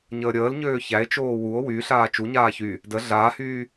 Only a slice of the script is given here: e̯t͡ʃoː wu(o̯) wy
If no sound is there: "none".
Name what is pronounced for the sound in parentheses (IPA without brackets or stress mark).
o̯